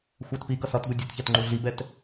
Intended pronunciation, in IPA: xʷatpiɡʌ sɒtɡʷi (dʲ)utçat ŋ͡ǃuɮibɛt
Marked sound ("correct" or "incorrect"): correct